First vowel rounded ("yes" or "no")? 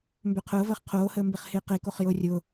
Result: yes